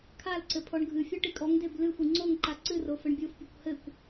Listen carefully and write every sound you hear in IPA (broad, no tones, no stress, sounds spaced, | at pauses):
kʰ a l ǀ ɘ pʰ ɔ ɳ ɡʱ ɨ fʲ ɔ ʈ i kʼ ɔ ŋ d e b l ɨ xʷ i ŋ͡ǀ o ŋ ǃ a ǀ ɨ r o f ɘ ɳ bʲ o f pʲ o kʷ h ɘ kʷ